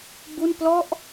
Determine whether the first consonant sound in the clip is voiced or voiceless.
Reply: voiced